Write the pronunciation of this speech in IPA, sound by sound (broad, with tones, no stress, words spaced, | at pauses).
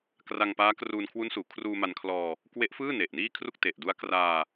kra˧ŋpaː˦˥kruː˧nkʰwu˦˥n suː˩˦kʰruː˧ma˧nkʰlɔː˧ | kwe˦˥ʔfɯː˥˩ne˨˩ʔ niː˥˩ kʰru˥˩k̚te˨˩ʔdu˦˥a̯ kraː˧